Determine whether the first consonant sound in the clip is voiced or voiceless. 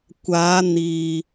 voiceless